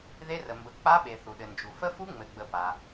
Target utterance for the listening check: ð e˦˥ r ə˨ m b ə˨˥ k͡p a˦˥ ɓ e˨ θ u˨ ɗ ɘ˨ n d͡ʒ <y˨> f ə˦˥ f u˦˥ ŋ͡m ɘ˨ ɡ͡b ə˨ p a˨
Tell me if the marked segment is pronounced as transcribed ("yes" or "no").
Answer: no